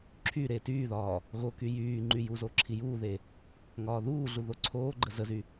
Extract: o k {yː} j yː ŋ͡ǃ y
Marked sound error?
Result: yes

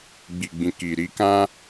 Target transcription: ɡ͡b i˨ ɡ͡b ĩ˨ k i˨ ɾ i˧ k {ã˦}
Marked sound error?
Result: no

